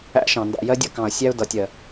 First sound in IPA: æ̰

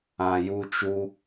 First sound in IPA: ã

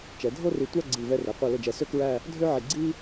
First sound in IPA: t͡ʃ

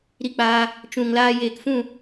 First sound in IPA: ɾ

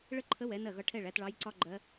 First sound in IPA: ɭ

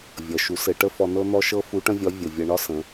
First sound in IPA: vʲ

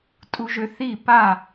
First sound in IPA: tʼ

